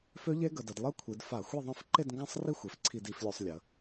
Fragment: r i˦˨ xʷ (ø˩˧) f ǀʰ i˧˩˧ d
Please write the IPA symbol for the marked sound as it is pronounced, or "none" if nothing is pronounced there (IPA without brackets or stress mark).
e˩˧